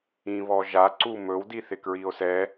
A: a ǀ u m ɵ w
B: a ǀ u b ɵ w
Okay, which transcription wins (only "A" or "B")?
A